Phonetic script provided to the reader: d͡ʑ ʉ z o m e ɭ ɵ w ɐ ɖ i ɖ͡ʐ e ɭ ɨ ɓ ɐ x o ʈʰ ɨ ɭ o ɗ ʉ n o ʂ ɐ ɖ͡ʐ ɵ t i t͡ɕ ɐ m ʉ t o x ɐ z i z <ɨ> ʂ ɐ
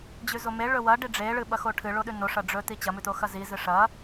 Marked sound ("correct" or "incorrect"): correct